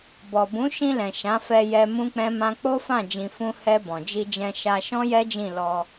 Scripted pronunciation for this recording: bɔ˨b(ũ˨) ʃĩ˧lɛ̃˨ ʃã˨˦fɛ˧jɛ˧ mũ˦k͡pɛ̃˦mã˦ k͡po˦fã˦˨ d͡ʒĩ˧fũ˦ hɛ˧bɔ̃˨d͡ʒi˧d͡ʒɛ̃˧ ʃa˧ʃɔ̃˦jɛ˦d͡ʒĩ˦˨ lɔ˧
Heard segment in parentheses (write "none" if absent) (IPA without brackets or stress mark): ũ˨˦